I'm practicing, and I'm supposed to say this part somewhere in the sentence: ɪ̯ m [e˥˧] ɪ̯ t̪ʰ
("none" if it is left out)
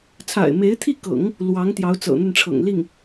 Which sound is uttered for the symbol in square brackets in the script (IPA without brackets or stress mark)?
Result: e˧˥